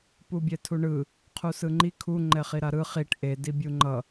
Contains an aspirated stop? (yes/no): yes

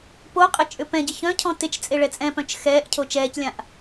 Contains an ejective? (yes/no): yes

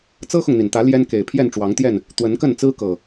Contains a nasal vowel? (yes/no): no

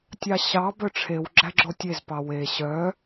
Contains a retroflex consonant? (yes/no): yes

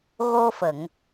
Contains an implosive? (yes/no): no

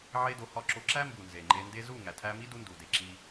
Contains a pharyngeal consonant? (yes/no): yes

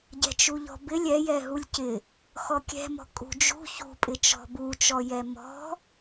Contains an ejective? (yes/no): yes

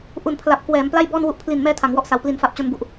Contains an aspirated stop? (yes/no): yes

